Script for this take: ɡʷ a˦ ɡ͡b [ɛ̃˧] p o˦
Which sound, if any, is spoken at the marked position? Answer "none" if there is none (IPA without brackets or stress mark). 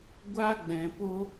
ɛ̃˧